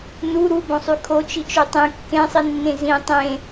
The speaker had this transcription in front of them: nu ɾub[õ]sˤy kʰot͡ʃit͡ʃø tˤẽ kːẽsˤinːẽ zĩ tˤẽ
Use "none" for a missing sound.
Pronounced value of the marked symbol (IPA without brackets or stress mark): õ